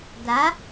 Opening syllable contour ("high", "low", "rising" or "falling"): rising